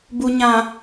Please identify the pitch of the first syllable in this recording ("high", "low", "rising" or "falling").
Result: low